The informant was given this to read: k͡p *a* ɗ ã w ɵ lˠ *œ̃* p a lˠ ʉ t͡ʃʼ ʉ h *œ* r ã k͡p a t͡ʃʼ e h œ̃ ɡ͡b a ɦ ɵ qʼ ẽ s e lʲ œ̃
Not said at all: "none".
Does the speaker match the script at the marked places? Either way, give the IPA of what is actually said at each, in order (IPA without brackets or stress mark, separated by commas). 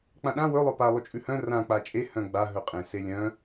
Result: ã, œ, œ̃